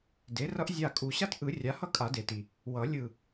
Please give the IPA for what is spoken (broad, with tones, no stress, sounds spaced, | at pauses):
d e˩˥ r ʌ˦ ʔ zʲ a˧˩ kʼ u˨˩˦ ɕ a˦ t ʔ ɯ˨˩˦ rʲ a˩˥ h ʌ˦ kʼ a˨˩˦ d e˩ t i˩ | w ʌ˨˩˦ lʲ ɯ˧˩